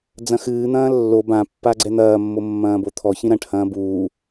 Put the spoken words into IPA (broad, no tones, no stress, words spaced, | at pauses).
d͡zɐ̃xɨːn̪ɐ̃ː lːo bãpːa ɡ͡ǀɛn̪ɐːmːo mːɐ̃ːbot̪ʰɔçĩ ɾɐ̃ʈhɐ̃ː buː